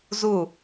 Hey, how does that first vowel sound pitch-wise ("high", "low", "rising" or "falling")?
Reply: falling